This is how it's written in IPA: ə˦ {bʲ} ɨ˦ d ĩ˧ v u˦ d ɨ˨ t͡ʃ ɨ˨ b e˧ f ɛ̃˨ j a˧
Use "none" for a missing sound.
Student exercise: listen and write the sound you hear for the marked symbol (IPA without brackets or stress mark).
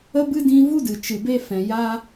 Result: b